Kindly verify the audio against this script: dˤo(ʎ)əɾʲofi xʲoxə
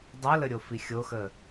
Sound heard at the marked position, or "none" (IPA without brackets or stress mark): l